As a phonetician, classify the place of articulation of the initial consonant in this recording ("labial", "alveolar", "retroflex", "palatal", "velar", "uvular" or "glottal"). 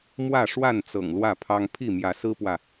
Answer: labial